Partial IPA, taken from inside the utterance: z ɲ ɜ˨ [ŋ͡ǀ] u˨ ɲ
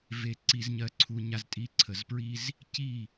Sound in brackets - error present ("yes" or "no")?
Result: yes